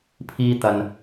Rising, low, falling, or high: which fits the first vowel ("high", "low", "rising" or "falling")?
high